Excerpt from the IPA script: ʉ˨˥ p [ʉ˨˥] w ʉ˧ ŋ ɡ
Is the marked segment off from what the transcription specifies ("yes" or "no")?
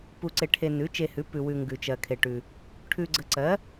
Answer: yes